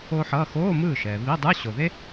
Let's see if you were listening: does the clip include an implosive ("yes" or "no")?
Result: no